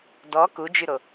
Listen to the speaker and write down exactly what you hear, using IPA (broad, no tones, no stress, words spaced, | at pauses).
dɔ kud͡ʒyɾo